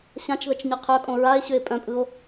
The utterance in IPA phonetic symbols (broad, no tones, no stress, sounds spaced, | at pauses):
ɕ ã t͡ʃ ð ə t͡ʃ ɲ ɤ qʰ œ kʼ õ ɹ a e̯ ɕ ʏ e̯ pʼ œ̃ pʼ ɯ o̯